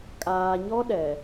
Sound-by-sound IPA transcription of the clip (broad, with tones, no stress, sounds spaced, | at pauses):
kʼ aː˨ ɲ ɔ˦ ɗ ɛ˨